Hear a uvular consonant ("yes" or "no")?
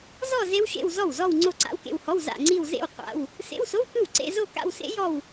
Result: yes